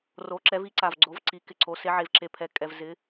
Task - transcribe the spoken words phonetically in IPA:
r o˩˧ ǁ ɛ˩˧ v i˩˧ ǀ a˩ v ɡ͡ǀ o˩˧ v ǀ i˩˧ k ɪ˩ ǀ o˩˧ s e˩˧ ʕ e˩ v ǁ e˩ pʰ ɛ˩ kʼ ɛ˩ v z ɪ˩˧

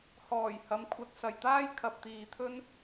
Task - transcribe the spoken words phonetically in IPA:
h ɔː˨˩ j h ɐ˨˥ m kʷʰ ɐ˨ t̚ s ɐ˨˩ j t̪ aː˥ j kʰ ɐ˨ p̚ t̪ iː˨ t̪ʰ ɵ˥ n

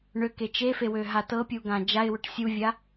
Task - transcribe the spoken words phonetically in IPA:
ɳ ø k e t͡ʃ e f e w ø ɦ a t ɤ pʲ u ɡ ã d͡ʒ a ɪ̯ w ø ʈ sʲ u vʲ a

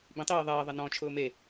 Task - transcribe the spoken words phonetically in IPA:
b ĩ tˤ iː ðˤ ɐː ðˤ ɐ n ɔ̃ t͡ʃʰ ʊː m e

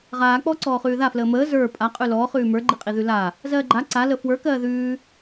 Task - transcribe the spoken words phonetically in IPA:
ʁ aː k͡p ɔ ǀ ɔː χ ʉː ð a f l əː m əː z ə˞ pʼ a qʼ ʉ l ɔː χ ʉː m ə˞ ɡ͡ǃ i qʼ i ð ʉ l a | z ɜː ɡ͡ǃ a ǀ a l ə f w ə˞ k ɜː ð ʉː

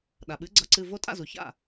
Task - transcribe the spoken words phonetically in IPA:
ɗ a˩ ɓ ɨ˩˥ ɡ͡ǀ ʌ˩˥ ǀ ɨ˩˧˩ v o˧ tʼ a̰˥˩ z u˩ ç a̰˥˩

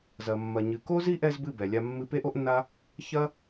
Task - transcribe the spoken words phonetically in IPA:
z ɐ˨ mː ɐ˨ ɲ ɨ˨ k o˦ z i˦ ʔ ɛ˧ z b ɨ˦˨ b ɛ˨ lʲ a˧ mː ɨ˧ p e˦ ʔ o˦ ʔ nː a˦ | ç ɐ˦

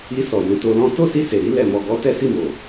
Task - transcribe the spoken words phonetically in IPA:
i˧ s ɔ˨ j ũ˨˦ t o˧ l ɔ̃˦ t o˦˨ s i˧ s e˨ ɾ i˧ l ɛ˨ m ɔ˨ ɡ ɔ˨˦ t ɛ˦ s i˦˨ m o˨

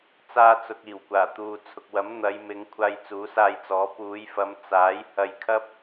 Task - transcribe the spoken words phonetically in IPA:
t͡s aː˧ t͡s ʊ˨ k̚ iː˨˩ w kʷ aː˨˩ t̪ uː˨ t͡sʰ ʊ˨ k̚ w ɐ˨˥ m n̪ ɐ˨˧ j m ɪ˨˧ ŋ kʷʰ aː˧ j t͡s uː˨˥ s aː˧ j t͡s ɔː˨˥ p uː˨˧ j f ɐ˨˧ m t͡s aː˨˥ j h ɐ˧ j kʰ ɐ˥ p̚

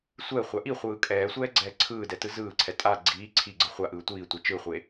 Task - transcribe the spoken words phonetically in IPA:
sʷ ɛ χʷ a ʔ i χʷ ɯː kʼ ɛː sʷ ɛː ɡ͡ǀ ɛː ǀʰ ɯː d ɛ t ɯ z ɯː ǀʰ ɛ tʼ a ɡ͡ǀ iː ǀʰ i ɡ͡ǀ ɯ χʷ a ʔ ɯː tʷ iː tʷ ɛ t͡ʃ ɯ χʷ e

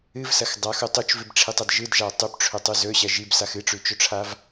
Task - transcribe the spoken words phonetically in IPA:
ɨ v s ɐ x dˤ a x u tˤ u t͡ʃ v ɨ b ʈ͡ʂʰ i tˤ ɐ d ʒ ɨ d ʒ a tˤ ʉ p ʈ͡ʂʰ ɵ tˤ ʉ z ɵ ɕ ɐ ʒ i b s a x ɨ ʈ͡ʂ ʉ t͡ʃ ɵ ʈ͡ʂʰ a v

